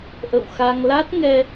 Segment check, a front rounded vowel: absent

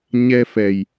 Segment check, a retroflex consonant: absent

